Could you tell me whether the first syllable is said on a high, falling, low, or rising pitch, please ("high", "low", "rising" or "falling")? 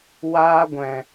high